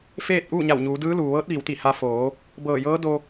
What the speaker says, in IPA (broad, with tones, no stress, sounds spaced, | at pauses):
f eː˥˨ t̚ ʔ uː˥˨ ɲ a˧˩ w ɲ uː˩˧ d ɯː˧˥ l uː˩ ʋ ɤː˧˥ t̚ ʋ i˩˧ w t̪ i˧˩ h a˧ f oː˩˧ | b ɤː˧˩ j ɤː˧˥ d o˧